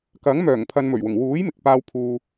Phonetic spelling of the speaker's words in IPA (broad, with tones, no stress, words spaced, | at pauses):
kɐ˨˥ŋmœː˨˩ŋ pʰɐ˧nmɵ˨˩ɥwʊ˨˩ŋ wuː˨˥j mɪ˨k̚paː˧wpʰuː˨